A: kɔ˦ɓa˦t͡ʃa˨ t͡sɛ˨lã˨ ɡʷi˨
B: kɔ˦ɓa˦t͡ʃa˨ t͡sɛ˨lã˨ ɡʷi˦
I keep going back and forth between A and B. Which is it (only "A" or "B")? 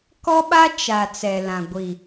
A